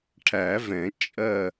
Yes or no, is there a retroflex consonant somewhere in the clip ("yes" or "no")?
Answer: yes